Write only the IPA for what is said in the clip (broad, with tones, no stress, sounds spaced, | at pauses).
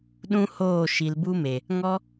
ɗ ũ˦ h oː˦˨ ʃ i˨ l b u˦ m e˨ | ŋ ɔ˦